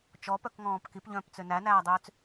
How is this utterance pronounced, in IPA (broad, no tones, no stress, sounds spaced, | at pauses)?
t͡ʃ ɔ p œ k ŋ ɔ̃ː p k i p ʎ œ̃ː p t͡s ø n æ n æː dˤ øː t͡s